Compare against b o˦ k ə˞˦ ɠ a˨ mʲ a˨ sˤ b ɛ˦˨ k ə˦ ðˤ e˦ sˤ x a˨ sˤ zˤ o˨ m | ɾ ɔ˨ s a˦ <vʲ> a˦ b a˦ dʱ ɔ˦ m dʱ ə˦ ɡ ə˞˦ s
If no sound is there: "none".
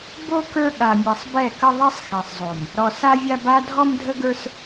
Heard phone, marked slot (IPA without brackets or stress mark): vʲ